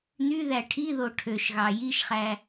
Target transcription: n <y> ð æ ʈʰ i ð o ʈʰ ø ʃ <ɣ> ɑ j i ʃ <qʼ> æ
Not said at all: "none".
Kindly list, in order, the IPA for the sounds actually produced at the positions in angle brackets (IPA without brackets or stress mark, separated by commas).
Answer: y, ɣ, χ